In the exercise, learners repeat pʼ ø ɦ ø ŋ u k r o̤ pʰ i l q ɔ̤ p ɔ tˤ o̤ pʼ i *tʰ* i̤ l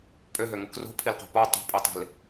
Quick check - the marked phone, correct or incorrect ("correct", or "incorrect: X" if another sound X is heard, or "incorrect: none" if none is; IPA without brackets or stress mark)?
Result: incorrect: tˤ